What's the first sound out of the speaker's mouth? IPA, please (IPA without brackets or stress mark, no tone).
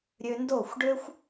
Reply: ɾʲ